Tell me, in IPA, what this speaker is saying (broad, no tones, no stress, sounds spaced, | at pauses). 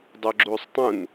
dˤ ɵ ɡ͡ǁ uː sˤ tˤ ũ n